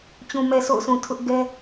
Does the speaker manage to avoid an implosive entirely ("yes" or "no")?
yes